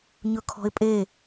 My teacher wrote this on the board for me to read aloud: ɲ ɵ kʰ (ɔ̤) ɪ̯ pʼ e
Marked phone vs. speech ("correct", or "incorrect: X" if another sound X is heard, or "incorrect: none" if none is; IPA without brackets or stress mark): correct